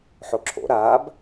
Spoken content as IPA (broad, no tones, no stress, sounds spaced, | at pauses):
ħ o ǁʰ o̰ ɾ aː b